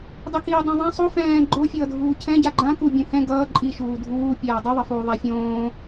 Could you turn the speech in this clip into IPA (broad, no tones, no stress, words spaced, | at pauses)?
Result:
dˤɛkiːdˤõðˤã sˤo fɛ̃ː ɡ͡ǃofʲʌːdʱuː cʰɛ̃ ɟaɡ͡ǃã ku bʲũhɛ̃ ɡʌː ǃʼi ʃuːdʱuː pʲaːdˤuðˤʌfuː ðˤafʲõː